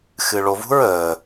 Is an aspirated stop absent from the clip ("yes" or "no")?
yes